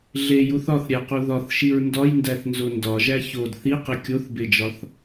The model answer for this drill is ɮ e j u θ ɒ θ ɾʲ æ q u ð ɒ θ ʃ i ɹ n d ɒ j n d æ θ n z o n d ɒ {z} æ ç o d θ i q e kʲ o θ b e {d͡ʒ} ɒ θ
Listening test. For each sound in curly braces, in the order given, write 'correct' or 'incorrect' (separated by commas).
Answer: incorrect, correct